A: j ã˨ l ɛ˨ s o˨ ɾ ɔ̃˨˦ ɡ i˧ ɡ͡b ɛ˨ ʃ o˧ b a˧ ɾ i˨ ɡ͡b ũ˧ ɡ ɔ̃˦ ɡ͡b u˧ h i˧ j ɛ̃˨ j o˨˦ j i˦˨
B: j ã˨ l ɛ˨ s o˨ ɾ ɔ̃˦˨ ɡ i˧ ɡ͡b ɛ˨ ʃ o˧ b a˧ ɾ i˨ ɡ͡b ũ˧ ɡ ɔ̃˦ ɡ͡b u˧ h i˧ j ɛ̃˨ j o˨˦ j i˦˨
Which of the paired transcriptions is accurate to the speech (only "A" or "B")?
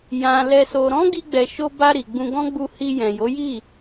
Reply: A